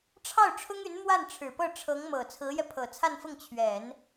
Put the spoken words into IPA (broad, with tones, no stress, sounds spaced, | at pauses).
ʈ͡ʂʰ ɑ˥˩ ʊ̯ ʈ͡ʂʰ ʊ˥ ŋ y˧˥ n m w a˥˩ n ʈ͡ʂʰ ɻ̩˨˩ p ɤ˥˩ ʈ͡ʂʰ ɤ˧˥ ŋ m ɤ˨˩ t͡sʰ ɹ̩˧˥ j ɛ˧ pʰ ɤ˨˩ t͡sʰ a˥˧ n f ʊ˥˩ ŋ t͡ɕʰ ɥ ɛ˨˩˦ n